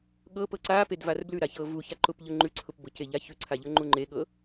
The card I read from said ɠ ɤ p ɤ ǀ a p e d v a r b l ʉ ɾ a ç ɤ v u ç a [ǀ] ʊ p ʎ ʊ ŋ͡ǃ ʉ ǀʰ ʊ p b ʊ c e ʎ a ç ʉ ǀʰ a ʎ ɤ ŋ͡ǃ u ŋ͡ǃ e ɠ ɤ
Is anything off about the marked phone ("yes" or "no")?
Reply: yes